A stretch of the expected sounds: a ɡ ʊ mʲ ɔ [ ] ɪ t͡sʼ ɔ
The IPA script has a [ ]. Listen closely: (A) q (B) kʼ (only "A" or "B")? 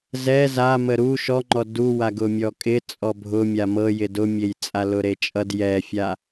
B